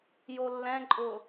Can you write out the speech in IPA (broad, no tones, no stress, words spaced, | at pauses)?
jolːɛ̃ǃʼʊ